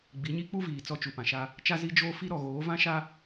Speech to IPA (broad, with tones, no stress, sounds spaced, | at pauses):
ɡ͡b i˨˦ ɲ i˦ k͡p u˦ v iː˨ t͡s ɔ˦ t͡ʃ u˨ p ã˨ ʃ a˦ | t͡ʃ a˦ z i˦ d͡ʒ oː˦ f i˦ ɾ ɔ˨ ɣ oː˨˦ v ã˦ ʃ a˦